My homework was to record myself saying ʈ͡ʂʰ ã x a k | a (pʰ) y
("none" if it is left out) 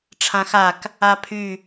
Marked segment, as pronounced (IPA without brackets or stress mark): pʰ